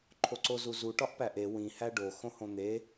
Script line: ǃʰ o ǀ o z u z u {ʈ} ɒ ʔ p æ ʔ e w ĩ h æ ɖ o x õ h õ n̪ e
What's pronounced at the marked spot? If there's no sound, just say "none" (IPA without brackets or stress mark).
ʈ